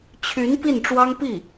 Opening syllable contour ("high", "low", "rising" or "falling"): rising